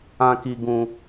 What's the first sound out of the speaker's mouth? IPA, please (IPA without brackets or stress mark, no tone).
ã